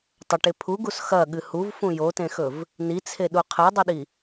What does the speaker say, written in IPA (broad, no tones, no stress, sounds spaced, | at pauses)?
tˤ ɐ ʈ e pʰ u ɡ u s x ɐ ɠ ɨ h u v f ũ j o t ẽ x ɵ v | n i t͡sʰ e ɗ u qʰ e dˤ i ɗ i